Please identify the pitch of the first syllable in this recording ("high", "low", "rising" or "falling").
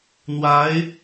rising